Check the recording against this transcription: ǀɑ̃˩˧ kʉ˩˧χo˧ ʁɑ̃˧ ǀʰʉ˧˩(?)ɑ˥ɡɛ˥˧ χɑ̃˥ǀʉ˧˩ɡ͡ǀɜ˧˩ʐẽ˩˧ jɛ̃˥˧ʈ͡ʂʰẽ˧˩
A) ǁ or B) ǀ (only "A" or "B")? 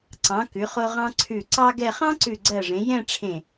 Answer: B